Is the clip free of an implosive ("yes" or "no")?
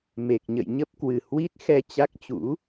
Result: yes